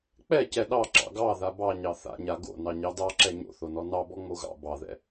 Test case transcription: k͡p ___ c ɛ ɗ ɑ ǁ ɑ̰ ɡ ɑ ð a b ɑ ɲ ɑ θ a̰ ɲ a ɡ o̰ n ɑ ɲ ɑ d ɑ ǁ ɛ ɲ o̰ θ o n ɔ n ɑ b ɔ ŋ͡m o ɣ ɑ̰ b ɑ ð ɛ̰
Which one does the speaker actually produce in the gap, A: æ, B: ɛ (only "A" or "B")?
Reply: B